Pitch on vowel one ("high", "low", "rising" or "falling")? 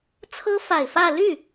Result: high